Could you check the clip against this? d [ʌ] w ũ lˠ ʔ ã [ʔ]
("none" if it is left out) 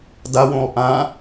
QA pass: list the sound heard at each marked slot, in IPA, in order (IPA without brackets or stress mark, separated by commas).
a, none